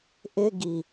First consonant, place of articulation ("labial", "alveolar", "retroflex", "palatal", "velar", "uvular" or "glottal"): glottal